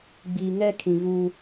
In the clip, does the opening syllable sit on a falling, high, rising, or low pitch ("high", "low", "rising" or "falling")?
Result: low